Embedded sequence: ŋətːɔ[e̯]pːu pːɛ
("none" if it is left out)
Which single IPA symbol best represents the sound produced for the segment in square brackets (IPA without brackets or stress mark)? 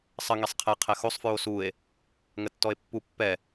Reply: e̯